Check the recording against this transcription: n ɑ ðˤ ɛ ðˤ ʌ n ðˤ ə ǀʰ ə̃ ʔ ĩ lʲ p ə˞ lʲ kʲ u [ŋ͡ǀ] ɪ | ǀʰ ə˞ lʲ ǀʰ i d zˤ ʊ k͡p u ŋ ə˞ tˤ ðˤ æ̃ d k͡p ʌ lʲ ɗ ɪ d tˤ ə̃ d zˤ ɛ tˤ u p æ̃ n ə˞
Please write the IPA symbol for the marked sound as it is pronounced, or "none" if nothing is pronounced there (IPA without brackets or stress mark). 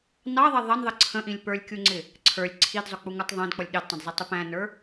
ŋ͡ǀ